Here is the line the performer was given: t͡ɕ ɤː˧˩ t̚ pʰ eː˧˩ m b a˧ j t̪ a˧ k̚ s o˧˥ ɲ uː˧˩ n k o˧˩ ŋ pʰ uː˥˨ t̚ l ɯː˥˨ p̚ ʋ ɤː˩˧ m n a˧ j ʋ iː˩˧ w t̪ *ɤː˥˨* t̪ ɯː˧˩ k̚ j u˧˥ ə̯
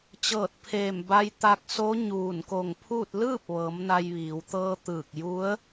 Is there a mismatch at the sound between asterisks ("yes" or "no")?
yes